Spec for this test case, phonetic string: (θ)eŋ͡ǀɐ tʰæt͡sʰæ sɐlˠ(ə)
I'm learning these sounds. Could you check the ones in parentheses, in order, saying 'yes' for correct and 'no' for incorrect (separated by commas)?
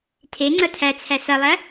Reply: no, no